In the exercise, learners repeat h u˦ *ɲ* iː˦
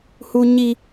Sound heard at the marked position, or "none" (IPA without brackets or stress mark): ɲ